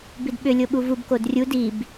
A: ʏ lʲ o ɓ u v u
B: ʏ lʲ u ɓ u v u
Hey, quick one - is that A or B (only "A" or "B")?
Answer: A